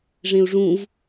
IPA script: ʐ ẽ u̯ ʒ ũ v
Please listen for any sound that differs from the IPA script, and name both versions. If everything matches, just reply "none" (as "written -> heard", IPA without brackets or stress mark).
ʒ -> ʐ